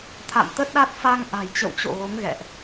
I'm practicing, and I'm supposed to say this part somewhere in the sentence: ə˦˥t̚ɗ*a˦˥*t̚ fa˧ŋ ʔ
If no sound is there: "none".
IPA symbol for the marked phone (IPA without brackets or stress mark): a˦˥